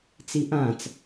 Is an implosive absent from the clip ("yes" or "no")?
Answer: yes